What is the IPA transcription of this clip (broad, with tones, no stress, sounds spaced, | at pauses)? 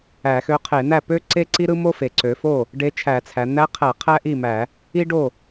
æ˧˩˧ x ø˧˥ qʰ e˧˩˧ n̪ æ˥˩ p ø˥ ǀ e˥ ǀ i˥ ɾ ɯ˥ m o˥ f e˩˧ ǀ ø˩˧ f o˥˩ | ɖ e˧˥ t͡ʃʰ æ˧˩˧ t͡sʰ æ˩˧ n̪ æ˧˥ qʰ æ˧˩˧ qʰ æ˥ ʔ i˥˩ m æ˧˩˧ | i˥ ɖ o˥˩